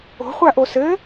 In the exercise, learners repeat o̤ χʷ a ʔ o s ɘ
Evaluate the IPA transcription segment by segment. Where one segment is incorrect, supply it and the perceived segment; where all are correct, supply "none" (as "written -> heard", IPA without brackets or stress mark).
none